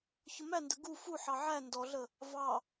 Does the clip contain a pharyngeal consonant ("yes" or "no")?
yes